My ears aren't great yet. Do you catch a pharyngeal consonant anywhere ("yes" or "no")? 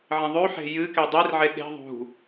yes